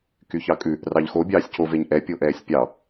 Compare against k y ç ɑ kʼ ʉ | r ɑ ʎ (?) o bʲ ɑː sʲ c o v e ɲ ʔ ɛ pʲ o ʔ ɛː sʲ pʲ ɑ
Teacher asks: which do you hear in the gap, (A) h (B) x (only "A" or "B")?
B